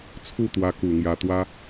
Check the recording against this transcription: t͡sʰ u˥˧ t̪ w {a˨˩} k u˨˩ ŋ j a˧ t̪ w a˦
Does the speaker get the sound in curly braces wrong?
yes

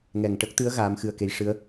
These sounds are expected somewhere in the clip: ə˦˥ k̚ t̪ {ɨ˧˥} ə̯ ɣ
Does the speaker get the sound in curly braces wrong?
no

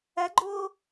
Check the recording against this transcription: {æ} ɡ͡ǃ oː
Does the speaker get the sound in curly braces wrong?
no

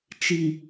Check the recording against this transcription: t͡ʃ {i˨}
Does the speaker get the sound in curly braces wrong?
no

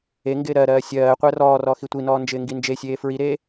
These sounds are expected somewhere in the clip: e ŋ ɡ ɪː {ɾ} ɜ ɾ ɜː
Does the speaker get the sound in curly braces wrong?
no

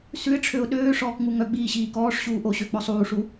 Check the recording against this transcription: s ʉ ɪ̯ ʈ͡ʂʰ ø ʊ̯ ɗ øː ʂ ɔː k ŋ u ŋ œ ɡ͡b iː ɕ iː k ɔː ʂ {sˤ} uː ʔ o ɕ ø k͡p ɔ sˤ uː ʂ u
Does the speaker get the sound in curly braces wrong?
yes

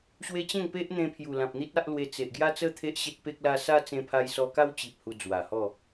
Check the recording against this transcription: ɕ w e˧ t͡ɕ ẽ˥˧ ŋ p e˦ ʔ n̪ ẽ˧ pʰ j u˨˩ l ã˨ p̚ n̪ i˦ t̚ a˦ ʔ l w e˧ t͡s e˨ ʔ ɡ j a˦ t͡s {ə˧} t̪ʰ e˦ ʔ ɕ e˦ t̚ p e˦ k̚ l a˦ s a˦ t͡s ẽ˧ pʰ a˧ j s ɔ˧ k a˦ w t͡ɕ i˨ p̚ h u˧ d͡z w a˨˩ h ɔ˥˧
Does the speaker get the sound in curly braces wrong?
yes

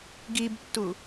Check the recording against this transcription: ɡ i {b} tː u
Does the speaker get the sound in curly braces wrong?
no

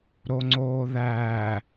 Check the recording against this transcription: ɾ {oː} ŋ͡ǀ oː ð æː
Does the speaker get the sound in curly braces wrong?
yes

